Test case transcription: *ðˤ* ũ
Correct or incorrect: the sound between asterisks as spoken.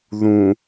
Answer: incorrect: ð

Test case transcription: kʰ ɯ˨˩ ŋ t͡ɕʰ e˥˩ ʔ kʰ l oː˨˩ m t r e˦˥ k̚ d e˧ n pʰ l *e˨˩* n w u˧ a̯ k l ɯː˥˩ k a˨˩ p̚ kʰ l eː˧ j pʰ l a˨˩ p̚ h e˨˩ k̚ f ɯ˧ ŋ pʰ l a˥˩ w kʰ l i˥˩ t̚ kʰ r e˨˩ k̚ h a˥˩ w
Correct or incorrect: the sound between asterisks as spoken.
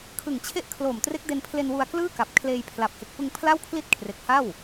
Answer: incorrect: e˧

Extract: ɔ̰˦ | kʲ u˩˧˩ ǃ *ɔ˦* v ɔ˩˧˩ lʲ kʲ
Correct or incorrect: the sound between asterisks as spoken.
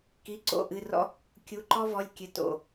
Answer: correct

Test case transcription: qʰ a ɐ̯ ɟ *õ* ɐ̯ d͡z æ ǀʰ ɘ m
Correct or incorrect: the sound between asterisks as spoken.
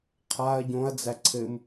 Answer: correct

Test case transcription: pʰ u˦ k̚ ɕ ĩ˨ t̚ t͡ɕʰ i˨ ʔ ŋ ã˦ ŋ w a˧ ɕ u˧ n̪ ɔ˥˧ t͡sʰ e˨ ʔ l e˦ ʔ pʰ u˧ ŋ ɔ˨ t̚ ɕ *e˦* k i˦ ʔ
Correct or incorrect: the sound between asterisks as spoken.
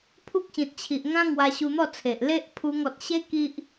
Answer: correct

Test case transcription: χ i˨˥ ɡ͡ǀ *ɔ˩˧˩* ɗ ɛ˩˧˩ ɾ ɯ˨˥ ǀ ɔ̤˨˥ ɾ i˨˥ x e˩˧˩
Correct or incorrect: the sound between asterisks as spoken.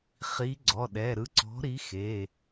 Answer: correct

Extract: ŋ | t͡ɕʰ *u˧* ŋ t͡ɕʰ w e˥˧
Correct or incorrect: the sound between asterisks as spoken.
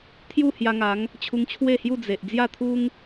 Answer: correct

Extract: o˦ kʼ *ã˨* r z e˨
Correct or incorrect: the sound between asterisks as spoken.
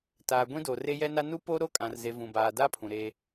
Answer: correct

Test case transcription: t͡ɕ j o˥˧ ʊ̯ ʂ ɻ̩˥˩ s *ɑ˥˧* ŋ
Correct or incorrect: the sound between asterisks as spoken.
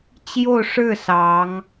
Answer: incorrect: ɑ˧˥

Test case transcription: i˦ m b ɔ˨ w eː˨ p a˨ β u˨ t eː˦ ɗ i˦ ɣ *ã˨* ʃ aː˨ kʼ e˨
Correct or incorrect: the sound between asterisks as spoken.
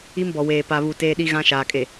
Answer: incorrect: ã˦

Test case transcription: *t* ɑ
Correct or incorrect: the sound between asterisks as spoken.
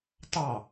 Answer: correct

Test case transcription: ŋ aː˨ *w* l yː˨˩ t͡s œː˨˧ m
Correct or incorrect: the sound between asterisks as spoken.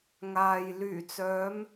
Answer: incorrect: j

